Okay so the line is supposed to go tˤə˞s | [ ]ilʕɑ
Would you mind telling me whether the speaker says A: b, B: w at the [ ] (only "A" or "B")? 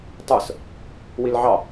B